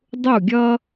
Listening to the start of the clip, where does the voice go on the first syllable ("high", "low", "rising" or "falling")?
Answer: falling